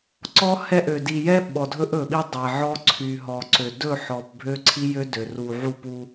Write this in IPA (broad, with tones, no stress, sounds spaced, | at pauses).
ǀ ɔ˦ h ɛ˦ ʔ ø˨ d i˨ j ɛ˦ ɓ ɔ˨ dʱ ɵ˦ ʔ ɵ˨ ɓ i˦ dˤ ɛ˨ ʕ ɔ˦ ǀʰ y˨ ɦ ɔ˨ ǀ ø˨ d ɵ˦˨ ħ ɔ˨ p bʱ ø˦ ǀʰ i˦ j ø˦ d ø˨ r u˨ ʕ u˦˨ p u˦